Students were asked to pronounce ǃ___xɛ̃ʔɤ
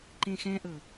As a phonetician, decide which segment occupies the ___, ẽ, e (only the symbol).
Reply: ẽ